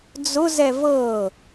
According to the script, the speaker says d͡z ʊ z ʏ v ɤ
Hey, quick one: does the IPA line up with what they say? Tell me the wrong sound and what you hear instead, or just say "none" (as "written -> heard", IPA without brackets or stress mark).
ʏ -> ɛ